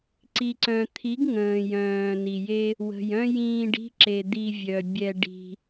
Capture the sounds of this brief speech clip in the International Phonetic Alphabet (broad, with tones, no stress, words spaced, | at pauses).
ǀi˨ǀœ̃˨t̪ʰi˨˦ɡ ŋə̃ː˨jœ̃ː˨ ni˨je˦ | wə̤˨jœ̃˦jĩː˧ɖi̤˦ ǁe˨ d̪i˧vʲœ˨ bʲɛ˧ɖi̤˧